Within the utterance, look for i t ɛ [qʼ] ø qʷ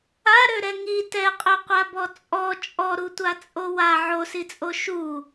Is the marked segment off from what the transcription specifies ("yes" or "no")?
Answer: no